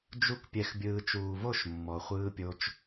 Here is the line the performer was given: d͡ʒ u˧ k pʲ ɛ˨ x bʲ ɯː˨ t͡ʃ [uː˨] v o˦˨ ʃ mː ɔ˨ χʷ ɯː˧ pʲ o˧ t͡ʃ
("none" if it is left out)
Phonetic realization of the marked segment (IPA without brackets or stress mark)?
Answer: uː˨